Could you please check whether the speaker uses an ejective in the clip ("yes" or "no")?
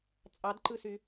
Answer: yes